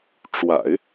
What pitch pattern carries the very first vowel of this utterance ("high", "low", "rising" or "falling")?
low